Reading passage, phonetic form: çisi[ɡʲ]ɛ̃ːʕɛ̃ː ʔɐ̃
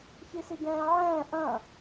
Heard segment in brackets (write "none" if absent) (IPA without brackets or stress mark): ɡ